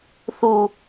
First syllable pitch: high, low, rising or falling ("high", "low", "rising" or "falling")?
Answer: low